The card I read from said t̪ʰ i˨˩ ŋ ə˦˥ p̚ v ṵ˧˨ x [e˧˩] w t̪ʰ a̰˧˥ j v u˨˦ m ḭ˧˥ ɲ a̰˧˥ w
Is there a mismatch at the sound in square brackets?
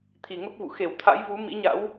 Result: no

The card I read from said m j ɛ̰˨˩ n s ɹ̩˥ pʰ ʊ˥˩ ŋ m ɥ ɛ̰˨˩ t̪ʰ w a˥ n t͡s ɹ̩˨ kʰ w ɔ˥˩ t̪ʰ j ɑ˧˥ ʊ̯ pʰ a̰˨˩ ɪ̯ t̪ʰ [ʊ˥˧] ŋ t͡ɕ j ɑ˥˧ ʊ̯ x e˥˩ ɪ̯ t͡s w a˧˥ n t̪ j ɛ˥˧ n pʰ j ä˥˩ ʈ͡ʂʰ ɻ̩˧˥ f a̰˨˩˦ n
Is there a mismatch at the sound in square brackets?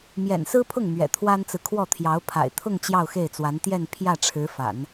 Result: no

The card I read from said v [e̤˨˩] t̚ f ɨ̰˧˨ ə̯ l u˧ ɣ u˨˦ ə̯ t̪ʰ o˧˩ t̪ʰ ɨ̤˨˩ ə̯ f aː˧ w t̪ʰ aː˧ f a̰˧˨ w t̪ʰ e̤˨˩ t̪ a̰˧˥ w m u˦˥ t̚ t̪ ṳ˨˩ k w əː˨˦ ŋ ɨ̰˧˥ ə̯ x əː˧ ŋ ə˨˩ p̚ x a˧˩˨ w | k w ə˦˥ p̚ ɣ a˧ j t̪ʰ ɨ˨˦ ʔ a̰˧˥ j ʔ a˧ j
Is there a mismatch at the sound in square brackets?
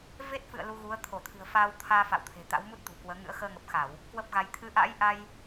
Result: yes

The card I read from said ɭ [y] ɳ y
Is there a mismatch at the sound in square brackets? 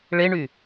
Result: yes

